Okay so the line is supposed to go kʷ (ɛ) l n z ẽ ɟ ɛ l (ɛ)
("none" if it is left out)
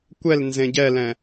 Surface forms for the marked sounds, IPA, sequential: ɛ, ɛ̃

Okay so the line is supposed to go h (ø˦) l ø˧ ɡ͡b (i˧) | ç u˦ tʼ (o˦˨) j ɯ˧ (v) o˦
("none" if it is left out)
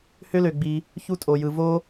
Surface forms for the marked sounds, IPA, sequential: ø˦, i˧, o˧, v

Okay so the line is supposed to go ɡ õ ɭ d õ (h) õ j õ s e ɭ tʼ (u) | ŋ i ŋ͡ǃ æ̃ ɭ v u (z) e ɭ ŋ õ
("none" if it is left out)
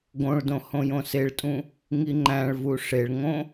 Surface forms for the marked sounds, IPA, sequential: h, ũ, ʂ

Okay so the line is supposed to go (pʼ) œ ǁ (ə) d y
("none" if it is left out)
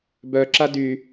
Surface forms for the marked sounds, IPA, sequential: b, a

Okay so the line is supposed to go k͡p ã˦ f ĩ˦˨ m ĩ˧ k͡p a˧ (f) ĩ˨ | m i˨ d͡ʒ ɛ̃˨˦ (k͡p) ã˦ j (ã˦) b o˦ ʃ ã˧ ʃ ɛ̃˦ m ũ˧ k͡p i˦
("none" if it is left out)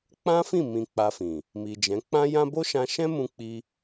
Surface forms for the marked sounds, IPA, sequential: f, k͡p, ã˦

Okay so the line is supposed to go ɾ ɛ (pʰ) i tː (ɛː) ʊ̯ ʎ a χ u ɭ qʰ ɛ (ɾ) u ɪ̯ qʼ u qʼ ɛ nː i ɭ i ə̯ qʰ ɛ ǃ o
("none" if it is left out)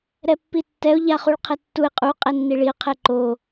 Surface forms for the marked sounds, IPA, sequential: pː, ɛ, tː

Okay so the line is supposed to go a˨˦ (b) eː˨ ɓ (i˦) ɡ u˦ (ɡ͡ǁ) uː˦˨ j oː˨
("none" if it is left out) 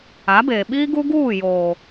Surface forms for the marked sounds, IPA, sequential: b, iː˦, ɡ

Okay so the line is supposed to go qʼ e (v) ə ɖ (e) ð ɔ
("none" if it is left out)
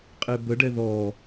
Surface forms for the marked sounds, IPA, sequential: b, ɛ

